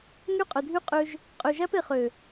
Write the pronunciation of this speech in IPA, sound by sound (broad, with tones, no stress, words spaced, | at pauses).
ŋy˦˨qʼœ˨dʱy˦ qʼø˦ʒ | qʼø˨ʒæ˦p e˨χø˨